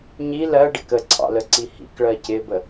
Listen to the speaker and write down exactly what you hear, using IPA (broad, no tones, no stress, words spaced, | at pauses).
ɲi lɜɖɪk əǀʰɑ̰ləǀi hḭkɭɜ cɪbə